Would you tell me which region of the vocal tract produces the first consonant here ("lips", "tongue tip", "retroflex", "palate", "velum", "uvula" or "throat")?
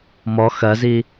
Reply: lips